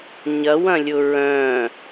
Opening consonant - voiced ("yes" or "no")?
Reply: yes